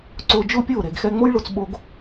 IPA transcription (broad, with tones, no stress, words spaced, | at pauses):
ǀʊː˧d͡ʒʊː˥pʲʊː˥˩ ɾe˩ɡxɛ˧ ŋ͡mo˥jɭʊ˧t͡s ɓo˧ɡ